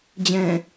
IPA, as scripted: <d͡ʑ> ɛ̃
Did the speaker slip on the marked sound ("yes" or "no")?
no